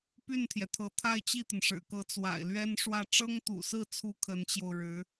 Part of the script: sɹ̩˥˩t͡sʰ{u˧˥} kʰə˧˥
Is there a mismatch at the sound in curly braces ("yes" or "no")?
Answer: no